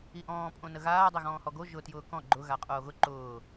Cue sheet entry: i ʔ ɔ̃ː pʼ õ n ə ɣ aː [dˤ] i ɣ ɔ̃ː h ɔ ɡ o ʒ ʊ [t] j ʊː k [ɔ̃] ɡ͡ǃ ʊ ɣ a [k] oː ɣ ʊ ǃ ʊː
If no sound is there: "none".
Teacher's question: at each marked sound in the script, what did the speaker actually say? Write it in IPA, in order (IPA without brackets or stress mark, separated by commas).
dˤ, t, ɔ̃, qʼ